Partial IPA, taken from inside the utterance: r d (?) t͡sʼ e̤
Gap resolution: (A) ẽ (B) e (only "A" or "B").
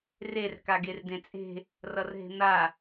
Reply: A